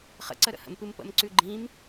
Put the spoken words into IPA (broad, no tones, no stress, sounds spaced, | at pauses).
χ ə̰ ǀ ə ɾ ə̰ h ə̰ m p ɨ m p ə̰ m ǀ ʉ ɡ͡ǃ ĩ m